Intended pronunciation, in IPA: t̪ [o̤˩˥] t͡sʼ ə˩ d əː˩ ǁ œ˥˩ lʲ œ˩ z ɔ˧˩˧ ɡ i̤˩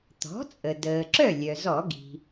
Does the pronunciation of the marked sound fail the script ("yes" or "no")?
yes